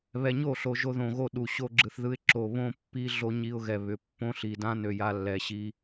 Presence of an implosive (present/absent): present